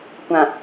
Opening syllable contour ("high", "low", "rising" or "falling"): low